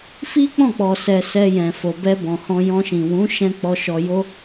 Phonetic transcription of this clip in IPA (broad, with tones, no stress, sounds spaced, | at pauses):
f i˦ k͡p ɔ̃˦˨ k͡p ɔ˨ s ɛ˨ s ɛ˧ j ɛ̃˨ f o˨ b ɛ˧ b ɔ̃˨ h ɔ̃˧ j ɔ̃˧ ʃ ĩ˨ w ũ˨˦ ʃ ɛ̃˧ k͡p ɔ˧ ʃ ɔ˧ j o˦